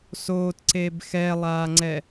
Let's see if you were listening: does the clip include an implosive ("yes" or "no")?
no